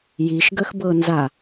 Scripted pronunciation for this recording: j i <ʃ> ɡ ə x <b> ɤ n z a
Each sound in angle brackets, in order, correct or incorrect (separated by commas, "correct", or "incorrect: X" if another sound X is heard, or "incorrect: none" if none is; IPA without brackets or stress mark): correct, correct